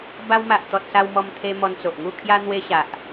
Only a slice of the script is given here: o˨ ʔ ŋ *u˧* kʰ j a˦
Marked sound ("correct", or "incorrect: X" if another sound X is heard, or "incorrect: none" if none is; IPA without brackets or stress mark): incorrect: u˥˧